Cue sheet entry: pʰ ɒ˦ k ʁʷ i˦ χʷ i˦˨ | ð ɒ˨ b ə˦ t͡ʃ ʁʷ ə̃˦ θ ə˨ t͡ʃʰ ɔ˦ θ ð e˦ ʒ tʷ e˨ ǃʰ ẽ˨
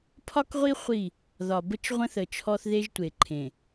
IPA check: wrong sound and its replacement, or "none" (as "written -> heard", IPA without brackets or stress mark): none